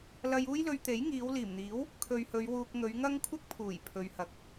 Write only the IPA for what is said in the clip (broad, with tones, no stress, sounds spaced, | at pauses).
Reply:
l ɐ˧ j uː˥ j l ɵ˧ ɥ t̪ e˨˥ j ŋ iː˨˧ w l iː˨˩ m n̪ iː˨˥ w | kʰ ɵ˨ ɥ h ɵ˨˧ ɥ w uː˧ k̚ ŋ ɵ˨˧ ɥ ŋ ɐ˥ ŋ kʷʰ ɪ˥ k̚ pʰ uː˨˩ j pʰ ɵ˨ ɥ h ɐ˨ k̚